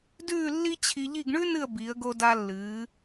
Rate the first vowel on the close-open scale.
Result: close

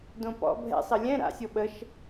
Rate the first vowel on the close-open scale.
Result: mid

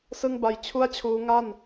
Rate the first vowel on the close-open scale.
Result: close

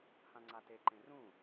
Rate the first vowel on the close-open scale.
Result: open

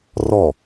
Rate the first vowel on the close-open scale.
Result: mid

